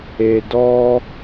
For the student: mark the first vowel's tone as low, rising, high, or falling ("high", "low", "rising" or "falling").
low